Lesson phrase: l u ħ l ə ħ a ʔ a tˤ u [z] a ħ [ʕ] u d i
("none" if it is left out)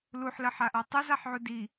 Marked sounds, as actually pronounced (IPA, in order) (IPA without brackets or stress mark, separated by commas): z, ʕ